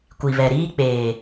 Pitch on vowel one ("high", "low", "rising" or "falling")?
low